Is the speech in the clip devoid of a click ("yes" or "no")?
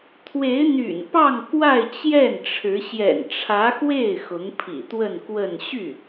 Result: yes